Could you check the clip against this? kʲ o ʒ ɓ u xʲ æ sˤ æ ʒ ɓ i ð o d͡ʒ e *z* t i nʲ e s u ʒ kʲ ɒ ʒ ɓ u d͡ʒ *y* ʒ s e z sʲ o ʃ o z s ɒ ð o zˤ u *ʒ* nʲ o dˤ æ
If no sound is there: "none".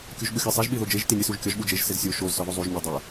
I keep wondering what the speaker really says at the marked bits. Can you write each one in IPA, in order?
ʒ, e, ʒ

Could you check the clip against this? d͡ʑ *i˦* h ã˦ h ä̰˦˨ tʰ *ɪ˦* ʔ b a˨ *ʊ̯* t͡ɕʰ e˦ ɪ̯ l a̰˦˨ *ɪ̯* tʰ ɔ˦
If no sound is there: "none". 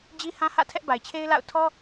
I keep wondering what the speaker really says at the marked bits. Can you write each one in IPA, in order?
i˦, ɛ˦, ɪ̯, ʊ̯

